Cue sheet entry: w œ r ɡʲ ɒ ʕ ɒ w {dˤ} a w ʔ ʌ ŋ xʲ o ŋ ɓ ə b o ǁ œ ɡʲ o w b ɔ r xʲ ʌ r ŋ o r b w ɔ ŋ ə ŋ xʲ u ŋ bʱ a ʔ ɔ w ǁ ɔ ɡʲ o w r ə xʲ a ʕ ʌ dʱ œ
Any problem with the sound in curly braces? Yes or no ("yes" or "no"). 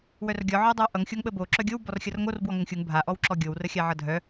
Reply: no